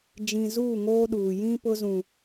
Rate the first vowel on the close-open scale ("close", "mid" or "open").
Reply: close